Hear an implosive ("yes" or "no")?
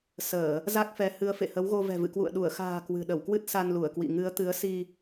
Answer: yes